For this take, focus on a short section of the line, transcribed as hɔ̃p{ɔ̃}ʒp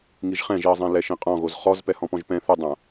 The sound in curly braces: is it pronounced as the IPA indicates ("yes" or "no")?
yes